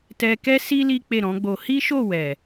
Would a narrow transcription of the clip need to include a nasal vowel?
yes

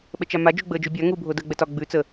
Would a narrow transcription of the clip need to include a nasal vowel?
no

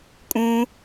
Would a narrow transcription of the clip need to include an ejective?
yes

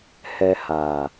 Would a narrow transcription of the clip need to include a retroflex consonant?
no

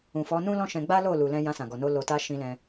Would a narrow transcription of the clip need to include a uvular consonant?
no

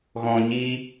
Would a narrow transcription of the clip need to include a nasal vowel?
yes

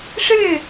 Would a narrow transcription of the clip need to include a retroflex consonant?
yes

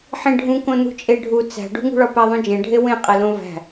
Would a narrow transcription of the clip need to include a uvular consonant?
yes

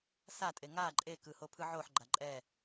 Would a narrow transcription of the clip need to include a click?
yes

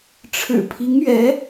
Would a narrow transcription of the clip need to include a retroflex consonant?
yes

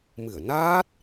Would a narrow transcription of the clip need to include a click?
no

